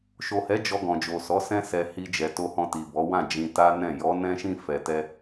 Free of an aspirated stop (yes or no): yes